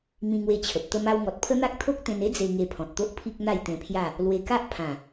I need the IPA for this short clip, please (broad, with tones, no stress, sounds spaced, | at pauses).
m ĩ˧ ŋ w e˧ t͡ɕʰ ə˨ p̚ t̪ ə˧ m a˧ w ŋ ɔ˨ t̚ pʰ ə˦ n̪ a˦ k̚ t̪ʰ o˦ k̚ t̪ ẽ˧ n e˦ d͡z e˧ ŋ e˧ pʰ ɔ̃˨ t̚ t̪ o˦ ʔ pʰ i˦ k̚ n̪ a˥˧ j t̪ ẽ˧ pʰ j a˥˧ | l w e˧ k a˦ ʔ pʰ ã˨˩